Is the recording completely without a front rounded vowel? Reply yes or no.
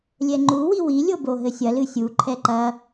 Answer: yes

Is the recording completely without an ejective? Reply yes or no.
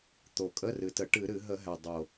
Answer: no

